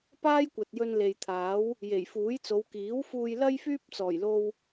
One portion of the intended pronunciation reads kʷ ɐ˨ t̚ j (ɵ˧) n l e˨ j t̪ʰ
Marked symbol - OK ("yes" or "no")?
yes